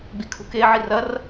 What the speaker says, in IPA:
ɡ͡b i kʰ ṳ k e ʕ i r ɐ r

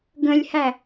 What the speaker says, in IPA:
ɡ ə̃ lʲ h æ

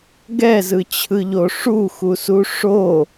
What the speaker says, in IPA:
ɡ ɛ z ɯ t͡ɕʰ ɯ ʎ o ʂ u x u s u ʂ o

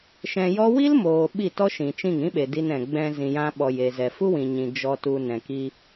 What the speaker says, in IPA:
ʃ ɛ̃˧ j ɔ˦ w i˦ l m oː˨ ɓ i˦˨ t ɔ˦ ʃ ĩ˨ t͡ʃ ĩ˦˨ ŋ ĩ˦ ɓ e˨ d i˧ n ɛ̃˨ ɡ͡b ɛ̃˧ z ĩ˨ j ã˧ ɓ ɔ˨ j e˨ z ɛ˨ f u˦ w ĩ˨ ɲ ĩ˨ d͡ʒ ɔ˨ t u˨ n ɛ̃˨ k i˧

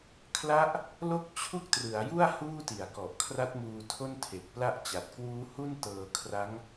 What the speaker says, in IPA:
kʰ l a˦˥ ʔ | l o˦˥ k̚ t͡ɕʰ u˥˩ k̚ t r ɯ˩˦ a̯ j u˥˩ a̯ h uː˥˩ t i˨˩ a̯ k ɔ˨˩ ʔ kʰ r a˦˥ t̚ m uː˧ tʰ o˥˩ n tʰ e˨˩ k̚ p l a˥˩ ʔ t͡ɕ a˨˩ t̚ k w uː˦˥ h u˥˩ n t ɤː˧ kʰ r a˦˥ ŋ

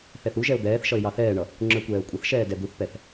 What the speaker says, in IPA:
θ ɛ θ u ʒ ɛ ʊ̯ d̪ ɛː θ ʃ ʌ ɪ̯ j ɑ θ ɛː ɳ ʌ | ŋ͡ǁ ə˞ kʷ ɛː ʊ̯ kʷʼ ʌ θ ʃ ɛː d ɛ d̪ u θ p ɛ θ

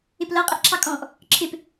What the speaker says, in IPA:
ɪ p l ʌ qʼ ɪ ʔ ǁʰ ɑ kʼ ɔ̃ ʔ | ǁʰ ɪ p

